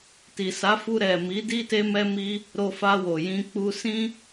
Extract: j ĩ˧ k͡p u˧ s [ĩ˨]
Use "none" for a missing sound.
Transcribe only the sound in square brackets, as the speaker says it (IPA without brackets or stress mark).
ĩ˦